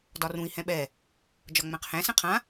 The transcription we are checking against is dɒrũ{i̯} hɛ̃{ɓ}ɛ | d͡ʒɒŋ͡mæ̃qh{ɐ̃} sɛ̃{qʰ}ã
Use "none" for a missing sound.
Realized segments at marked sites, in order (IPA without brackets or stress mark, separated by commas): i̯, ɓ, æ̃, qʰ